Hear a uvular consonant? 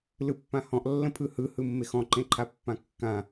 no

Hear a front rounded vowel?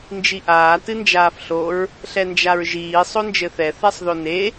no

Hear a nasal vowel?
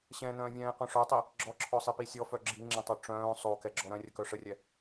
yes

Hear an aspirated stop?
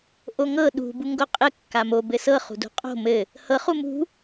no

